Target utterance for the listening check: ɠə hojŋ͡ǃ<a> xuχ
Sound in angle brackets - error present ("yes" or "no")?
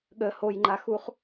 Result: no